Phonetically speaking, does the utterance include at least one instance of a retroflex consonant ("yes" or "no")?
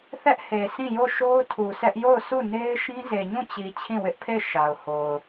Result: no